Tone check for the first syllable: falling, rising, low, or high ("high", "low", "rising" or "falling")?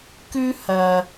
high